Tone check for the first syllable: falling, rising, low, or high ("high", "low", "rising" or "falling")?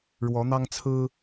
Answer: rising